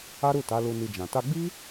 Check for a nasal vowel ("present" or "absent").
present